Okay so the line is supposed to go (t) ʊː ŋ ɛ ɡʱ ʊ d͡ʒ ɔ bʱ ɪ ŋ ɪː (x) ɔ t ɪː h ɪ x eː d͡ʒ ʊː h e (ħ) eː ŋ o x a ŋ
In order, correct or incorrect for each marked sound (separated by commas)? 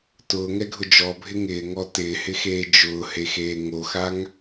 correct, incorrect, incorrect